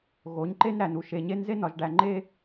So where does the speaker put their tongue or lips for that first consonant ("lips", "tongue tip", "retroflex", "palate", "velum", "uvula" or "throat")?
velum